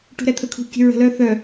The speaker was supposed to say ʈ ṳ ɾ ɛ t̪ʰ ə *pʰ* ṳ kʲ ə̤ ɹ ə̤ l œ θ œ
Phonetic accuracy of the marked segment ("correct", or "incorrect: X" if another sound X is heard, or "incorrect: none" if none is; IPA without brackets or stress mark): incorrect: kʰ